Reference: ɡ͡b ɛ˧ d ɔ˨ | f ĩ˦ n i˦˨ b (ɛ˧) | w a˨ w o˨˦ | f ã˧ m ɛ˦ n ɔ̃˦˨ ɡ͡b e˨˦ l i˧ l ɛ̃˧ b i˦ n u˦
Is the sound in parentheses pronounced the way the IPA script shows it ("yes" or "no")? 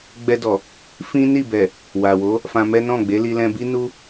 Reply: no